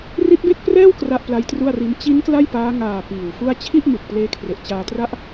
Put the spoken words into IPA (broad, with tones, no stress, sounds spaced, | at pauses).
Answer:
r i˦˥ t̚ b e˥˩ k̚ p r ɛː˥˩ w k r a˥˩ ʔ p l a˦˥ j t r u˥˩ a̯ r i˦˥ n t͡ɕ i˦˥ n k l a˥˩ j p aː˦˥ ŋ aː˨˩ p iː˨˩ w f u˥˩ a̯ t͡ɕʰ i˥˩ ʔ m ɯ˨˩ k̚ p l eː˦˥ kʰ r e˨˩ ʔ t͡ɕ aː˧ t r a˦˥ ʔ